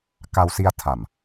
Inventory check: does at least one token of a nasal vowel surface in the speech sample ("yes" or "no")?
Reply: no